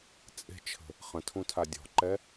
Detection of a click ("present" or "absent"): present